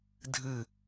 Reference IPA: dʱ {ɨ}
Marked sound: correct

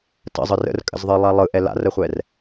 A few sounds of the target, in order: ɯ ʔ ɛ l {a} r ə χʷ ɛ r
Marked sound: incorrect: a̰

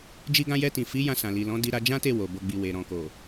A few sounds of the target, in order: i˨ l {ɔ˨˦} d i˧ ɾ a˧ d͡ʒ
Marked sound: incorrect: ɔ̃˨˦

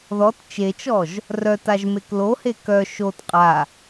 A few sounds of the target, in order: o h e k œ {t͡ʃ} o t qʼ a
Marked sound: incorrect: ʃ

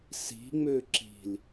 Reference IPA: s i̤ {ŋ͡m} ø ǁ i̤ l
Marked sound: correct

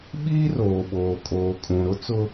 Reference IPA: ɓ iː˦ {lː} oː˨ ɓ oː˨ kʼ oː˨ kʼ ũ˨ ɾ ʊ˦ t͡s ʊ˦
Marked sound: incorrect: r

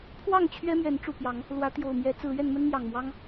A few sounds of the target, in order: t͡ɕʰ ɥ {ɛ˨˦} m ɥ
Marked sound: incorrect: ɛ˦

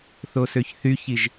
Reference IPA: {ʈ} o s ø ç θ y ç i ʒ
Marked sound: incorrect: θ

